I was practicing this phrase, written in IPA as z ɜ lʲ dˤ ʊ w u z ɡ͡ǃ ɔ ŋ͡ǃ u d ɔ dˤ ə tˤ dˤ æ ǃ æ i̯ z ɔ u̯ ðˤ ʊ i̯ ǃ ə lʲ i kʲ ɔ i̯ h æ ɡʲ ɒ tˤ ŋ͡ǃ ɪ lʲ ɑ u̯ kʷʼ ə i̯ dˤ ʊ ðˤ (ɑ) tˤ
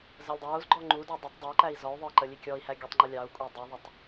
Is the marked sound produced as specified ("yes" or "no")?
no